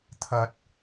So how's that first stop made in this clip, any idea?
aspirated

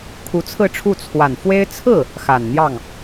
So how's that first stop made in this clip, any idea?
aspirated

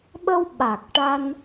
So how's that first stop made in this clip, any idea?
implosive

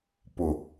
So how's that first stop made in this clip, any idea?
plain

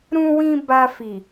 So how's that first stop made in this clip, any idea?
plain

